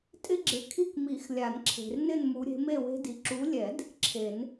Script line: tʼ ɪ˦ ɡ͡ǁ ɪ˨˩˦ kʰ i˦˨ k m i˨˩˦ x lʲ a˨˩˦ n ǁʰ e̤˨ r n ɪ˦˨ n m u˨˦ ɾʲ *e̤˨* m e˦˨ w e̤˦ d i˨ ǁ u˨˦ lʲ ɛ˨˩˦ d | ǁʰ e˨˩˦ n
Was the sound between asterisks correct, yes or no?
no